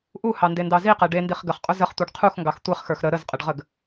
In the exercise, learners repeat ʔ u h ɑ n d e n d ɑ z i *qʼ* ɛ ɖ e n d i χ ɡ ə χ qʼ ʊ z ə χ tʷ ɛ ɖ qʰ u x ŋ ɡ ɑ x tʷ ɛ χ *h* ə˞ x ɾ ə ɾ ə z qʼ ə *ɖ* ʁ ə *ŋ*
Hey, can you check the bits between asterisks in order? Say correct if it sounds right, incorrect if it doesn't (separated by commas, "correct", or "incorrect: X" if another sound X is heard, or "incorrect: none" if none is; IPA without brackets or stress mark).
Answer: incorrect: q, incorrect: x, correct, incorrect: ɡ